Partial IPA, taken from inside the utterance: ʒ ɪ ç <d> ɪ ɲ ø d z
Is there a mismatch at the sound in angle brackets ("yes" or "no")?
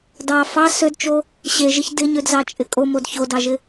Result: no